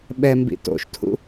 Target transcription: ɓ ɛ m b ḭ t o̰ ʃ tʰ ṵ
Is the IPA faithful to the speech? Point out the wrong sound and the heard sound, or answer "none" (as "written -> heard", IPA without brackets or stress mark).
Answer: none